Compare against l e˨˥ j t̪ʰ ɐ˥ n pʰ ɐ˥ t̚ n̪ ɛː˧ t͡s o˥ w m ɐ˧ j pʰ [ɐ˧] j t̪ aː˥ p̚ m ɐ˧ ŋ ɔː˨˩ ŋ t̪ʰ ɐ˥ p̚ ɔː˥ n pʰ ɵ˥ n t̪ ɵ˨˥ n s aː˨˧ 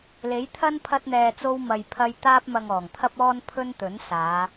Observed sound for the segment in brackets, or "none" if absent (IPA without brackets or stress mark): ɐ˥